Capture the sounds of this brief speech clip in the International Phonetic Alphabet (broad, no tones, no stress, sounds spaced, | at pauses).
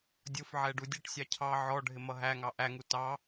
dʲ ʊ f ʕ ɛ ɖ u dʲ ʌ ʈ sʲ ɑ cʰ ɑ ʕ ɔ ɖʱ ɪ m ʌ ɦ æ ŋ ɑ ʔ æ ŋ u t ɑ